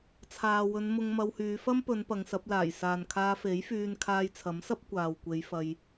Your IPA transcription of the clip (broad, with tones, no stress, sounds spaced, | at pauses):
t͡sʰ aː˨ w ɵ˨˧ n m ʊ˧ ŋ m ɐ˧ w h yː˨˧ f ɐ˥ m p ɵ˨˧ n p ɐ˨˧ ŋ s ɐ˨˥ p̚ l aː˨˩ j s aː˨ n kʰ aː˧ f e˨˥ j f yː˧ n kʰ aː˧ j t͡sʰ ɐ˨˥ m s ɐ˥ p̚ kʷ aː˨ w kʷ e˨˧ j f ɐ˧ j